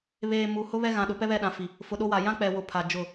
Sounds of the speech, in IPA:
β eː˨ m u˨ h ʊ˦ β ɛ˦ ɣ ã˨ ɗ ʊ˨˦ p ɛ˦ β ɛ˦˨ ɗ ã˨ f i˨ | f ʊ˨ ɗ o˦ w a˨ j ã˦ k͡p ɛ˨ w ʊ˨ pʰ a˨ d͡ʒ ʊ˦˨

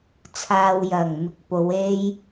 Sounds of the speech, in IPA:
t͡sʰ aː˨ w j ɐ˨˩ ŋ m ɪ˨ k̚ p o˨˧ w e˧ j

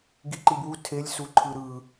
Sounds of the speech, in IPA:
ɡ i ǃ i b w u tʰ e lʲ s u ǃʰ ɯ ɾ ɯ

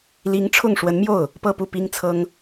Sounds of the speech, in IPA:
l i˧˥ ŋ ʈ͡ʂʰ ʊ˥˩ ŋ ʂ w ə˧˥ n m j o˥˩ ʊ̯ | p ɤ˥˧ p u˥˩ p i˥ ŋ t͡sʰ ɤ˥ ŋ

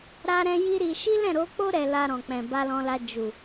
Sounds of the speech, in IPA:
ɾ a˦ ɾ ɛ̃˦ j i˦ ɾ i˧ ʃ i˦ l ɛ̃˦˨ ɾ o˨˦ k͡p o˦ ɾ ɛ˧ l a˧ ɾ ɔ̃˨ k͡p ɛ̃˨ b a˧ l ɔ̃˧ l a˧ d͡ʒ u˨

